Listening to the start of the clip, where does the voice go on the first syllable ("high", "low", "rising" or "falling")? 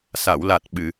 low